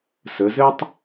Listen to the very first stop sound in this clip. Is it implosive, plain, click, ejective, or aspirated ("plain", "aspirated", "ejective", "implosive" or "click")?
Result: plain